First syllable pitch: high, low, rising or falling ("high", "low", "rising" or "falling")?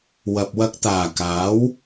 low